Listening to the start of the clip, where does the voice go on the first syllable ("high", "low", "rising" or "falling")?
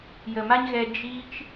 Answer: low